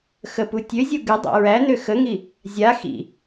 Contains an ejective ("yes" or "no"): no